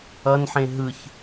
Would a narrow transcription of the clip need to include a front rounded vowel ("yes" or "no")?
no